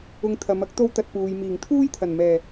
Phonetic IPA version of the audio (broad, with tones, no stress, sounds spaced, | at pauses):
ʊ˧ ŋ t̪ʰ ɐ˨˧ m ɐ˥ k̚ t̪ o˥ w t̪ ɐ˧ t̚ p uː˨ j m iː˨˩ ŋ t̪ʰ uː˥ j t̪ʰ ɐ˨˩ n m ɛː˨˩